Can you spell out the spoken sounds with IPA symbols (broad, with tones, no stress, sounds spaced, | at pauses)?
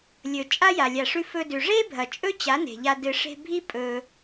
lʲ ɵ˨ t͡ʃʼ a˦ j a˨ lʲ a˨ ʂ ʉ˧ f ɵ˧ d ʉ˨ ʐ e˦ bʱ ɐ˨ t͡ʃʼ ɵ˦ t͡ɕ a˨˦ n e̤˨ ʎ a˧ d ɨ˧ ʂ e̤˧ bʱ i˦ pʼ ɵ˧